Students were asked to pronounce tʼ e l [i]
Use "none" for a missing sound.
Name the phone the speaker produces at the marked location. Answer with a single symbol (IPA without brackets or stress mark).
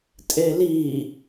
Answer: i